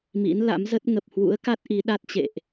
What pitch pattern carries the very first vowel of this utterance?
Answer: rising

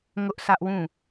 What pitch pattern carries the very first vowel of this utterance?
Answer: high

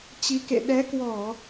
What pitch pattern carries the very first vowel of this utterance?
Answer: rising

